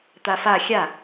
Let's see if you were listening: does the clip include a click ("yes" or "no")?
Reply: no